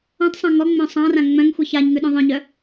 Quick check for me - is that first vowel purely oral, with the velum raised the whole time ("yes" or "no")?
no